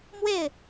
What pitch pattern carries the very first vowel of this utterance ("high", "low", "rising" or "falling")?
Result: falling